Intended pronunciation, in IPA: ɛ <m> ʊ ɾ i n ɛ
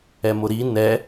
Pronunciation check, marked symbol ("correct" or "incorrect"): correct